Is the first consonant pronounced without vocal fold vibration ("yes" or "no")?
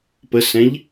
yes